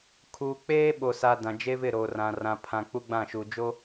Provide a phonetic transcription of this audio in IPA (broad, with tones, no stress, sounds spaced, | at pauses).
kʰ uː˨ k͡p eː˦ ɓ o˨ s a˨ d ã˨ d͡ʒ e˦ v ɪ˦˨ ɾ o˨ r ã˨ r ã˦ pʰ ã˦ k͡p u˦ ɡ͡b ã˦˨ ʃ uː˨ d͡ʒ o˦